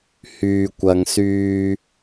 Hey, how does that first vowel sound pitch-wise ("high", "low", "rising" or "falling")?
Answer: low